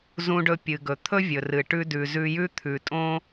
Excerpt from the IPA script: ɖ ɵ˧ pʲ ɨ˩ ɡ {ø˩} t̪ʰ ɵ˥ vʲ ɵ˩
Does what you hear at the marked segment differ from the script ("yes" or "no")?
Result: yes